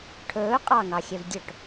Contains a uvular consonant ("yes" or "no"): yes